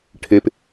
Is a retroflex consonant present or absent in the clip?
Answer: present